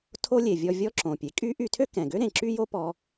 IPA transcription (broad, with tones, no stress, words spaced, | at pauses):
tʰo˥ lʲe˩ vʲɔ˧vʲɔ˥ǁõ˩pʲe˩ kʼy˥ ʔy˧tʰø˥kɛ̃˩ɡø˥ ɾẽ˩ǁy˥ jo˥pɔ˧